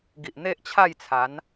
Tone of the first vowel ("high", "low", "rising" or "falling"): low